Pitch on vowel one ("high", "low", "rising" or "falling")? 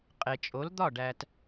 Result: low